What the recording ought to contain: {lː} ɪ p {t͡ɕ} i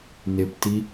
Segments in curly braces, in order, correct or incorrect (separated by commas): incorrect, incorrect